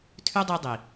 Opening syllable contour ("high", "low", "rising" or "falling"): high